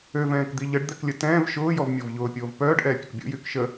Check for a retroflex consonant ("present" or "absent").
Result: present